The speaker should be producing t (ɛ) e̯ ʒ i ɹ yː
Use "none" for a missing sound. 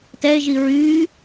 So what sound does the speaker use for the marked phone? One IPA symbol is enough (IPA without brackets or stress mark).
ɛ